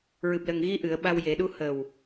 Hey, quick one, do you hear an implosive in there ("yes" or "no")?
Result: yes